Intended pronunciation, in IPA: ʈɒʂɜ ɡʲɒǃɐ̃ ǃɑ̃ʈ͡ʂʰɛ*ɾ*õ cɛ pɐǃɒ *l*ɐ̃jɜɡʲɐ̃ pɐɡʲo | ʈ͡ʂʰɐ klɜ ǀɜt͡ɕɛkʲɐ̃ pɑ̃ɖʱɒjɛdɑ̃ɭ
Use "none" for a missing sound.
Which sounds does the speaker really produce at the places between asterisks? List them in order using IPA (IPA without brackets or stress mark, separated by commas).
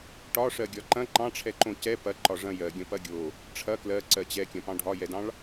ǃ, ʐ